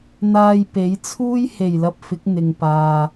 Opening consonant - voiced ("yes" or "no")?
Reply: yes